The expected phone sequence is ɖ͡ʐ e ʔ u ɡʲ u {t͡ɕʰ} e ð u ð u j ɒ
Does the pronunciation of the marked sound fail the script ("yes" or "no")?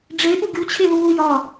no